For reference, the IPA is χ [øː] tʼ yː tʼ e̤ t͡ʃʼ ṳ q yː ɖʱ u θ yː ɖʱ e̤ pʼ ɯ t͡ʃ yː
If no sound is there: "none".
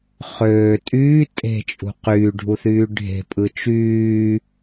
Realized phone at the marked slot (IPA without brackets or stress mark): øː